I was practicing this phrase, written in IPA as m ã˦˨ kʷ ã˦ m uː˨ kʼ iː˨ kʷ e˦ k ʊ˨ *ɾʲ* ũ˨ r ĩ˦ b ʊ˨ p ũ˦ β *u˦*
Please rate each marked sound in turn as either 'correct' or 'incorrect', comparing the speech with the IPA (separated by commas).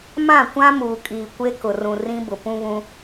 incorrect, incorrect